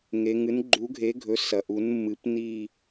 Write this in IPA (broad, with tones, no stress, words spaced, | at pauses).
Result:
ŋe˩˧ŋɨ˩˥n ɡ͡ǃu˩˥ɡʱe˩˥ɡʱɵ˩˥ sɐ˩˧ʔu˩˥n mːɨ˩˥pni˦˨